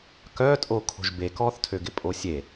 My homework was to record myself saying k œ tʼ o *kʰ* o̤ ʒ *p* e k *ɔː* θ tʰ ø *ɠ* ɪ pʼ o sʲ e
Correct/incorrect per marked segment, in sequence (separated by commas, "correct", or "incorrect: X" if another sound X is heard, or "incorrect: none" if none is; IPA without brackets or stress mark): correct, incorrect: b, correct, incorrect: ɡ